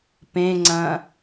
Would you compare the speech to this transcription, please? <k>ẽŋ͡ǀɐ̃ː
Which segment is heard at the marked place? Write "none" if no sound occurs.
p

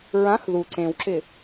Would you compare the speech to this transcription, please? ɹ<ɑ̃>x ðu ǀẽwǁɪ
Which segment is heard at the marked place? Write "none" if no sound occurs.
ã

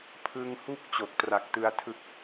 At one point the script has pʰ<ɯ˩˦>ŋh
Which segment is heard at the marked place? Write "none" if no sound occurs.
ɯ˧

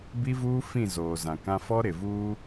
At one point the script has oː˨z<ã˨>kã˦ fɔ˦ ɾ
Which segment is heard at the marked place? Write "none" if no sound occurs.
ã˨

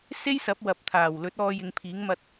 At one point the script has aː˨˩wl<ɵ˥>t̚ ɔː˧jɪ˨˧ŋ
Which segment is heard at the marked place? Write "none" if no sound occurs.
ɵ˨˥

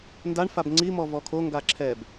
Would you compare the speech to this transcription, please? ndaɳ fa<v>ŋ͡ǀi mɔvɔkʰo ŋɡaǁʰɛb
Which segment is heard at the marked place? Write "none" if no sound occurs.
b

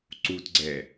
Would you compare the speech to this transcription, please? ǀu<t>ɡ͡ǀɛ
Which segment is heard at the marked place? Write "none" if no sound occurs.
t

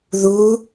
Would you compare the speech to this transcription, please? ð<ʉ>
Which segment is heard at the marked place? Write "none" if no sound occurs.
u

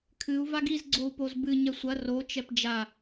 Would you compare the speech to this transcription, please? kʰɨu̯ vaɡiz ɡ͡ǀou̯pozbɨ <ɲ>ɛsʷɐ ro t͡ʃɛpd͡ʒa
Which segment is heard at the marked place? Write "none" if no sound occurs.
ɲ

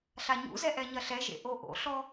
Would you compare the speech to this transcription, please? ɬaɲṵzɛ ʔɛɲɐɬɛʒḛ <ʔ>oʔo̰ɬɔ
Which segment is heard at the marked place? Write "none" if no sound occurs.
ʔ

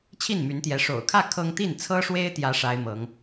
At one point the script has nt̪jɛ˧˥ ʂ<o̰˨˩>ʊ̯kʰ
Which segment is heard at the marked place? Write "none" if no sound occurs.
o̰˨˩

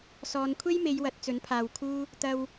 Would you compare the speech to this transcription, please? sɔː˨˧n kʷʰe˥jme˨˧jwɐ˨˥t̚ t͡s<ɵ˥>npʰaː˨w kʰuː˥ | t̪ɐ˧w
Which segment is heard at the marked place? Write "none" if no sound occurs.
ɵ˨˥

